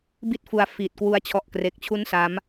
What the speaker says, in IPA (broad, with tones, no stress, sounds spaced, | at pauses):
b i˥˩ t̚ f u˧ a̯ f iː˨˩ t̚ k w u˦˥ a̯ t͡ɕʰ ɔ˨˩ ʔ k r e˨˩ k̚ t͡ɕʰ u˦˥ n s a˦˥ m